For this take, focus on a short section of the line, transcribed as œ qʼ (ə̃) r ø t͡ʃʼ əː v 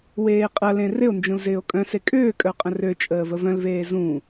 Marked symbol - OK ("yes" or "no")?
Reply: yes